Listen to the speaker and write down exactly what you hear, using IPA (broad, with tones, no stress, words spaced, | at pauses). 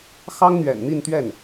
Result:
xɑ˥ŋn̪ɥɛ̰˨˩nn̪i˥˧nt̪ɥɛ˥˩n